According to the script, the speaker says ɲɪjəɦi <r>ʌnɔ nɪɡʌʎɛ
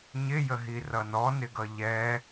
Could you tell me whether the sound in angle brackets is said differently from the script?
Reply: no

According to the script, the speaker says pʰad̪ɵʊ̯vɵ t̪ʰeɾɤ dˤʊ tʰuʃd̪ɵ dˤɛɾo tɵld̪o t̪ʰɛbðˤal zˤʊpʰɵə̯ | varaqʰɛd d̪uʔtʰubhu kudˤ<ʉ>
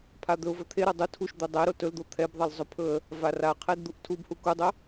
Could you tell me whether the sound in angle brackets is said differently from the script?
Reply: yes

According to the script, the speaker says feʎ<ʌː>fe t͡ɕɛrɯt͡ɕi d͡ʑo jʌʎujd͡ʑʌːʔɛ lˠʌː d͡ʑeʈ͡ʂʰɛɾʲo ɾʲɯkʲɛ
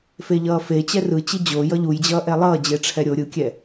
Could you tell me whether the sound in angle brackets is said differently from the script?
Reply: no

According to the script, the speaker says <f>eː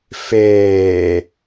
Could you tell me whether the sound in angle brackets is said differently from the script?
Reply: no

